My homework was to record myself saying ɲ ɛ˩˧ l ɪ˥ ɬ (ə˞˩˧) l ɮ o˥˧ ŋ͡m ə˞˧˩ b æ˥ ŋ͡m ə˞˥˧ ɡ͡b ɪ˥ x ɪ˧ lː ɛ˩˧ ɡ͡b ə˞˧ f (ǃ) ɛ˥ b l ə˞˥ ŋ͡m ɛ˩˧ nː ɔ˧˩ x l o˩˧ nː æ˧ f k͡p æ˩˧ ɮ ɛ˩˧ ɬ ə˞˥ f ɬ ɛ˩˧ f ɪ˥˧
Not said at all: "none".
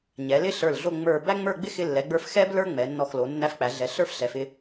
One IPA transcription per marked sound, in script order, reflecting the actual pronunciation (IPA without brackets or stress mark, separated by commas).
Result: ə˞˧˩, x